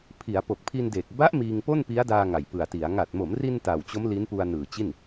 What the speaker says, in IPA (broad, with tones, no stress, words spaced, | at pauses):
pʰi˩˦a̯ po˨˩k̚pʰi˧n deː˨˩k̚ ba˦˥ʔ miː˧ŋpo˥˩n pi˦˥a̯daː˧ ŋa˨˩jpɯ˨˩a̯ti˩˦a̯ ŋa˨˩t̚mo˩˦mri˧n ta˨˩wt͡ɕo˦˥m li˦˥npu˧a̯nɯː˨˩t͡ɕi˥˩n